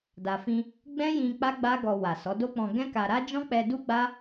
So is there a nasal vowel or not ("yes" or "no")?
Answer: yes